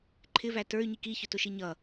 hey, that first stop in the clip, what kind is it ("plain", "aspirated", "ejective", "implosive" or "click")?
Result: click